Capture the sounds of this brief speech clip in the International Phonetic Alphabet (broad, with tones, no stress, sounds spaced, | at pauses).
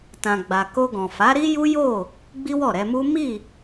t ã˨ ɡ͡b a˨ k o˧ ɡ ɔ̃˨ f a˨˦ ɾ i˦ j u˦ j o˦˨ | ɡ͡b i˦ w ɔ˦˨ ɾ ɛ˧ m u˦ m i˦˨